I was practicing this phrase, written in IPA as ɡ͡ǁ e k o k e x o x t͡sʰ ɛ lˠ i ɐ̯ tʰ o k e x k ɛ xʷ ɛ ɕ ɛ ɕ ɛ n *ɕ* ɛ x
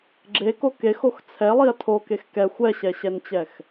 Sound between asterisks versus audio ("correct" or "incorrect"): incorrect